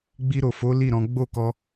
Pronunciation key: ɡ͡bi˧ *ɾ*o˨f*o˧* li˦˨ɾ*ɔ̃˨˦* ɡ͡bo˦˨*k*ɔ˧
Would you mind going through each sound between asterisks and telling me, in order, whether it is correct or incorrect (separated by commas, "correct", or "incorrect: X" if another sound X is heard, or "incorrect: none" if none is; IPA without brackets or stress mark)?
correct, incorrect: o˨˦, correct, correct